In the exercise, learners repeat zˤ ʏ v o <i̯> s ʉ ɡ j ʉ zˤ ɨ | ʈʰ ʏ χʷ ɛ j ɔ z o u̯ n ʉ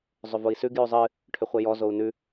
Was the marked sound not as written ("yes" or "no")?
no